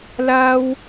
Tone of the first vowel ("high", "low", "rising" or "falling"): high